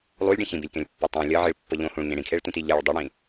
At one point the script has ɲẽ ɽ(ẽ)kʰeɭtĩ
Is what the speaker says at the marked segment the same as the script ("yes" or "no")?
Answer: no